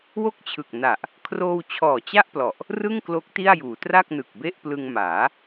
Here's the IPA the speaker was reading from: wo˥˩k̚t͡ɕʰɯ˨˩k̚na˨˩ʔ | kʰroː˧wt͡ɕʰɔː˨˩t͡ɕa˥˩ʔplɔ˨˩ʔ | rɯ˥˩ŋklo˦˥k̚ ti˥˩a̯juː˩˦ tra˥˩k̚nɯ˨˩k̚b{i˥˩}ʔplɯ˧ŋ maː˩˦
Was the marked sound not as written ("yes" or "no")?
yes